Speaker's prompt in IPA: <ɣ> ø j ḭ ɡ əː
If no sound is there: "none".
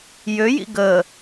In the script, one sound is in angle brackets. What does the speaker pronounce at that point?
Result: j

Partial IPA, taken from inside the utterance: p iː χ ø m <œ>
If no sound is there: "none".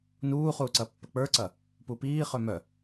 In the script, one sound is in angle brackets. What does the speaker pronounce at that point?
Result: œ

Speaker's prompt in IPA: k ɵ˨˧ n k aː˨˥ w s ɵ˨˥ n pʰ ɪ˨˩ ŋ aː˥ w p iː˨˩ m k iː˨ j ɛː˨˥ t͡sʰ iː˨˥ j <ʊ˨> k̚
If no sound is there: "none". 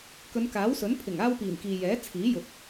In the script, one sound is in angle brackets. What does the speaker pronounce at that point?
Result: ʊ˨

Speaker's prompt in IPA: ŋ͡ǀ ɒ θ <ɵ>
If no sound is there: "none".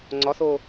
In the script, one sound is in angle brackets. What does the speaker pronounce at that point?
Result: o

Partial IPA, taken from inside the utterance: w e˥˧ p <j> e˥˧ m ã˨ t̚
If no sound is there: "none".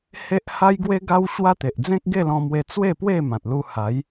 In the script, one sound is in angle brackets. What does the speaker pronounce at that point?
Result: w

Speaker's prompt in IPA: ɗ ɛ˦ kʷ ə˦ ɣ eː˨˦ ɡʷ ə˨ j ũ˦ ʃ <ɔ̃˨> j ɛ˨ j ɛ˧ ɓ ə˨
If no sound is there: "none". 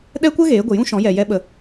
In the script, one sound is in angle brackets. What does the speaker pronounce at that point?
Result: ɔ̃˨˦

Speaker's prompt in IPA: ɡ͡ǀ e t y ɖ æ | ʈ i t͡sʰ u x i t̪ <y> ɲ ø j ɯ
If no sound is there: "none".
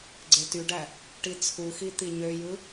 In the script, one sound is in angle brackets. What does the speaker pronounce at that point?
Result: i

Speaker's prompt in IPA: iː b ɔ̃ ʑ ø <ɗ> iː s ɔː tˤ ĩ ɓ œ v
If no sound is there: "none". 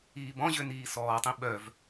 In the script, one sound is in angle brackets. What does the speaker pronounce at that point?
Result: n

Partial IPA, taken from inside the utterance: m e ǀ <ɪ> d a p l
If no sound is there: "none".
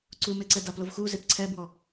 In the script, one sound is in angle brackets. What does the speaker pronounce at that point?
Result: ɛ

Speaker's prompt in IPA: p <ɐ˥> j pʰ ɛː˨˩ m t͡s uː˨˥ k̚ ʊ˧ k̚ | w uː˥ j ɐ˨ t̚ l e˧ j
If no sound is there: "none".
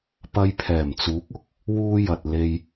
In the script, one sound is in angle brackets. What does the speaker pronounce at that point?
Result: ɐ˧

